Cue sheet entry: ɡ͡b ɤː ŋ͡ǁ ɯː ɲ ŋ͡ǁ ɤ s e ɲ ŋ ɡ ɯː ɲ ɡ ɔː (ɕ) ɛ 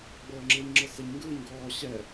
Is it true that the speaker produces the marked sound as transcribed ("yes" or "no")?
yes